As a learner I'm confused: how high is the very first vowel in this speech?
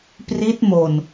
high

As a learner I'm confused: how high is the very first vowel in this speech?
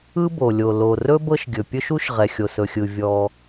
high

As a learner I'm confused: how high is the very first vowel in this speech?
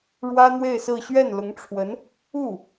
low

